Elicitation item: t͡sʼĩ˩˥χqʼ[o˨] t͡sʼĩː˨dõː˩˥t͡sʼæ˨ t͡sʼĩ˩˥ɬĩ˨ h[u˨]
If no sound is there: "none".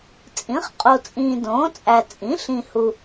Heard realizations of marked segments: o˨, u˨

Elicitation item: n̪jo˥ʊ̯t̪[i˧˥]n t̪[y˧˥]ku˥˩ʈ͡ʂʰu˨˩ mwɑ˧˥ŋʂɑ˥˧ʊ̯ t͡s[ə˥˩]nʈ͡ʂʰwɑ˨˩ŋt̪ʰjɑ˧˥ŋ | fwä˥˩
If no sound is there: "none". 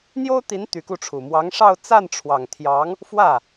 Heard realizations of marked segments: i˧˥, y˧˥, a˥˩

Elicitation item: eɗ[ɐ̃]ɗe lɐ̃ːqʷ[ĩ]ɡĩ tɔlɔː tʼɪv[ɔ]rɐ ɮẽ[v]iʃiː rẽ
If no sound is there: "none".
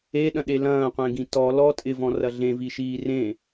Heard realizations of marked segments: ɐ̃, ẽ, ɔ̃, v

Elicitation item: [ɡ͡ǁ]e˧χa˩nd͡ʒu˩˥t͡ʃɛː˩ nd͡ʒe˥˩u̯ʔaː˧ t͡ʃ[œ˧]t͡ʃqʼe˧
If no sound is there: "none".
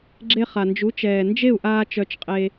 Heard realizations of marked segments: ɡ͡ǁ, œ˧

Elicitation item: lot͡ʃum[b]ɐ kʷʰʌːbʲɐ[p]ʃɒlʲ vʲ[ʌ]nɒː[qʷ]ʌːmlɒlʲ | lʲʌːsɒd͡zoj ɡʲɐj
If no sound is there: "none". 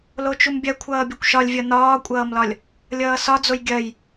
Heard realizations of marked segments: bʲ, kʷ, ʌ, kʷʼ

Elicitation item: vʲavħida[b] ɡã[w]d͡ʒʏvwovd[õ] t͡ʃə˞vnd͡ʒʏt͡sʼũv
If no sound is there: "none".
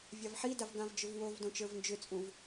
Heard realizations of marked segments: v, v, õ

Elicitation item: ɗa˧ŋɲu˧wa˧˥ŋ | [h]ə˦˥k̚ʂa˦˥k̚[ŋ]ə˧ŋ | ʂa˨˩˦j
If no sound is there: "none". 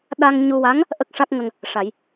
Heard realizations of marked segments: ʔ, ŋ

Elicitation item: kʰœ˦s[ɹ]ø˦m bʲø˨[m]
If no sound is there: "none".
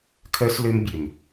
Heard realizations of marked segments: l, m

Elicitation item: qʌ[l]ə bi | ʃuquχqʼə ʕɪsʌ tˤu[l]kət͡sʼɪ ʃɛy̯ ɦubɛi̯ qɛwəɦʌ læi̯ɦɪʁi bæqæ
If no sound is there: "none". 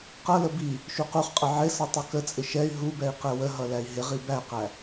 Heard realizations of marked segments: l, none

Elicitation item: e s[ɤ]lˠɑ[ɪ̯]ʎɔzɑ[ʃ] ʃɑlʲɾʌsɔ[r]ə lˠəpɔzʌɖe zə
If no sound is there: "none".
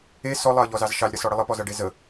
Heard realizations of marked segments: ɔ, ə̯, z, ɽ

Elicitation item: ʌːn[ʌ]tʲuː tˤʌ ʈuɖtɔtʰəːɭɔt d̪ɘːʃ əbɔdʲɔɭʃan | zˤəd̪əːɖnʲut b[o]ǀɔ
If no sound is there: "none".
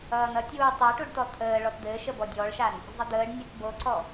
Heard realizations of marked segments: ʌ, o

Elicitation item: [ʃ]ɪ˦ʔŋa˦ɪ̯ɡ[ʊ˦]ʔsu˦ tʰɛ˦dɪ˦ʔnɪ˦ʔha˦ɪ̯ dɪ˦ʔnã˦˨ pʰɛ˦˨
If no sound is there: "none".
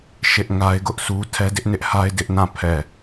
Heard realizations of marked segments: ʃ, ʊ˦

